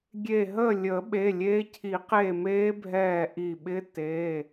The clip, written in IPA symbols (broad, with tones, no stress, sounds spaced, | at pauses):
ɡʲ e˧˩ ɦ əː˥˨ lʲ əː˨˩˦ ɓ e˩˧˩ lʲ e˦˥ cʰ i˨˩˦ q e˧˩ m eː˦˥ bʱ ɛː˧˩ ʔ i˧˩ ɓ ɪ˦˥ t e˩˧˩